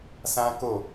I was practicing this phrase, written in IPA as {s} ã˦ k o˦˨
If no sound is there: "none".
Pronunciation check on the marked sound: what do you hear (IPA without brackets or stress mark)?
s